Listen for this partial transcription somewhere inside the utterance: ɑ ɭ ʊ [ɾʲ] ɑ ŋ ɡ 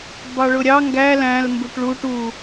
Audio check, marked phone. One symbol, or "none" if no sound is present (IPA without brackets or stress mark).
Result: ɾʲ